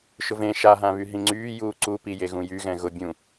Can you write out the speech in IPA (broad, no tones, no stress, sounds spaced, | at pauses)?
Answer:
ʃ ʊ v ẽ ʃ a ɦ ã β y ɦ ĩ ŋ͡ǀ yː j uː ǀ u p i j e ɣ ũ j y ɣ ɛ̃ ɣ ʊ bʲ ũ